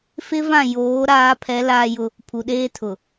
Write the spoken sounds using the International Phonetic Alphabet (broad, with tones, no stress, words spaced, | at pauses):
fɪ˦ vã˦˨ joː˨˦ɾaː˨˦pʰɛ˨˦ laː˦jʊ˦ | pʰu˨ɗeː˦ tʰʊ˨